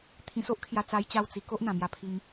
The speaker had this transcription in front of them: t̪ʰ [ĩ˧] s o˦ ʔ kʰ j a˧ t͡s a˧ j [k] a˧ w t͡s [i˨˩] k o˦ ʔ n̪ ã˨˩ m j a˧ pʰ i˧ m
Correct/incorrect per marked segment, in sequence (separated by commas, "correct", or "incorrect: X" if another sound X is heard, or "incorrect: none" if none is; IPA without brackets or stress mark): correct, incorrect: t͡ɕ, correct